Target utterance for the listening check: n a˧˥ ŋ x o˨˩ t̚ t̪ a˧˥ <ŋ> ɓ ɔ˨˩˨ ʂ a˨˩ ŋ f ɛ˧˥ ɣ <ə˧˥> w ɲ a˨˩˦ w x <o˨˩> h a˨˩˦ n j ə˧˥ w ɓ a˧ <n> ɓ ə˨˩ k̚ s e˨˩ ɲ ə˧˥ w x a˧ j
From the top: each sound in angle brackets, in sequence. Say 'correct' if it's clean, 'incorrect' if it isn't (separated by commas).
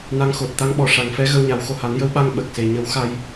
correct, incorrect, correct, incorrect